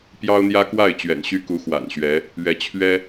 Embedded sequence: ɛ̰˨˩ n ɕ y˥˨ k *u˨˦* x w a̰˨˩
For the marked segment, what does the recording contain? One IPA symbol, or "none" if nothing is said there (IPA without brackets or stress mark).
u˨˦